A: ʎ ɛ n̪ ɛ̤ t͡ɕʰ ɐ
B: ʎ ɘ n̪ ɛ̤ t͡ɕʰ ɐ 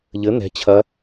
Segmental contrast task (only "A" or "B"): B